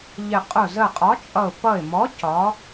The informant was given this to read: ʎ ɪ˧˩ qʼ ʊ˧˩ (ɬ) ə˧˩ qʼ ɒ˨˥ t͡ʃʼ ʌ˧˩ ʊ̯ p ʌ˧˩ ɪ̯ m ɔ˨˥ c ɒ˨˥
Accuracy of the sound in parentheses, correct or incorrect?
incorrect